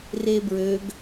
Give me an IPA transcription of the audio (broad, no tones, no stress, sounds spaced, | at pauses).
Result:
r e b ɹ ø ɡ